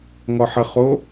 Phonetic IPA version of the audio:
ŋ ɔ ħ ə χ o

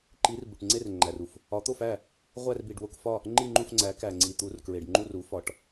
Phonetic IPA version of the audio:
ǃ i˨˥ r b u˨ ʈ ŋ͡ǀ e˥˨ r ŋ͡ǃ æ˨ r u˨ f | ɒ˨˥ t̪ o˥˨ f æ˥˨ | ʁʷ æ˥˨ r b i˨ ɖ w o˥˨ k f ɒ˥˨ | ŋ͡ǃ i˥˨ ŋ͡ǃ u˥˨ f ŋ͡ǀ æ˨˥ k æ˨ ŋ͡ǀ i˨ t̪ u˨˥ r k ɹ e˨ ɖ ŋ͡ǃ u˥˨ r u˨˥ f ɒ˨˥ ʈ

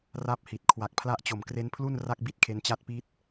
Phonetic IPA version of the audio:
r a˥˩ p̚ h i˨˩ t̚ kʰ w a˨˩ k̚ pʰ l a˦˥ ʔ t͡ɕ o˨˩ m k r e˦˥ n pʰ l u˥˩ n r a˥˩ k̚ b i˦˥ t̚ kʰ e˧ n t͡ɕ a˦˥ t̚ p i˦˥ t̚

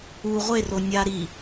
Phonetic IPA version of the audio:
u ʁʷ e r o nʲ a ɾ i

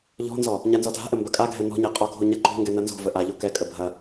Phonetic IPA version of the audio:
ʎ ɔ̤ n z ɔ | ɲ a n z ɔ dʱ a̤ ʔ ə m b ɐ kʼ a ɡʱ ɛ n ɔ̤ ɲ ɛ qʼ ɔ ɡʱ o ɲ a ǃ o̤ ŋ ɡ ɛ n ɐ n z o̤ v ə ʔ a ʎ o k ɛ kʼ ə bʱ ɐ

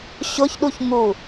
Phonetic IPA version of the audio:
ɕ ʊ ç ɗ u ç ŋ u

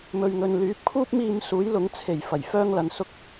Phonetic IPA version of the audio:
m ɵ˨ ɥ ŋ ɵ˨ n l yː˨˥ p̚ kʰ uː˥ p̚ m iː˧ m s uː˨˥ j l ʊ˨˥ ŋ t͡sʰ e˨˩ j f ɐ˨˩ j f œː˥ ŋ l ɐ˨ n s ʊ˥ k̚

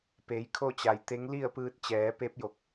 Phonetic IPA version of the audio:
p e˩˧ j kʰ o˥˨ t͡ɕ a˩ j t̪ e˧˥ ŋ l i˥˨ ə̯ p ɯː˧ t̚ t͡ɕ ɛː˩˧ p e˧˥ p̚ j o˧˩ k̚

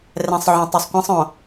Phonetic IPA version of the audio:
r ɛ̃˨ sˤ ʕ õ˨ tˤ u˨ sˤ kʷ ɛ̃˦ sˤ õ˨

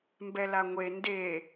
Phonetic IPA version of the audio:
m b ɛ l a ŋʷ e n d e

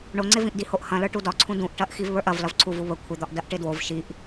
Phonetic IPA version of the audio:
ɳ o ŋ͡ǀ e v ĩ ʔ d i h o ʔ h ɐ̃ l ə˞ ʈ u d ɒ ǀʰ ũ d ũ ʔ ʈ ɐ ʔ x i v β ə˞ ʔ ɐ v l ɐ v ǀʰ u v u β ə kʷʰ ɪ d̪ ɒ ʔ d ɐ ʔ ʈ ɪ d w o v ʃ i ʔ

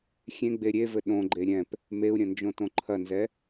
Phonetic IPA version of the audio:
xʲ ẽ ɡ͡b e ɾʲ e v ɘ ɗ õ ɡ͡ǃ e ɾʲ ɛ̃ p | m e u̯ ɾʲ ɐ̃ n d͡ʒ õ t õ ǃʰ ɐ n z ɛ

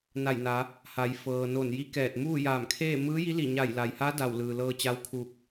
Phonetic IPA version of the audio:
n a˧˩ j n a˩˧ | h a˩˧ j f ɤː˩ n o˧˩ n j i˧˥ k ɛː˧˩ t̚ m uː˥˨ j aː˧˩ m kʰ eː˥˨ m ɯː˧˥ j i˧˥ l i˧˩ ɲ a˧˩ j l a˩ j h a˧˥ d a˧˩ w l ɯː˩ l ɤː˧ t͡ɕ a˧˥ w kʰ uː˧˩ k̚

